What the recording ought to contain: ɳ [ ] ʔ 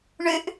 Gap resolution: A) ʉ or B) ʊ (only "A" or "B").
A